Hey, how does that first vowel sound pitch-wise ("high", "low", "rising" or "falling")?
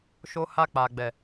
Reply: high